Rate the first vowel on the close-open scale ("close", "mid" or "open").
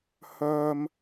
mid